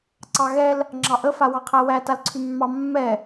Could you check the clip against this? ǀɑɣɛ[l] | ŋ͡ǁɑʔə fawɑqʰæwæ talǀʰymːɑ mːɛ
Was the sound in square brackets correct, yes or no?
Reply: yes